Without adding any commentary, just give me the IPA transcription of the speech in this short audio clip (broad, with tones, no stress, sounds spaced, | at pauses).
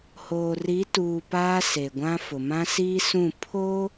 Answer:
h oː˨ r i˨˦ t uː˨ p aː˦ s e˨ ɡʷ ã˦ f ʊ˨ m ã˦ s iː˦ s ũ˦˨ pʰ o˦